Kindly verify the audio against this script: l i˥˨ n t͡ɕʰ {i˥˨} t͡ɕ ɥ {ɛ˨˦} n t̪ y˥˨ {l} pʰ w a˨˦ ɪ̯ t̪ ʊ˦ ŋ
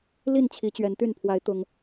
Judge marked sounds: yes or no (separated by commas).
no, yes, no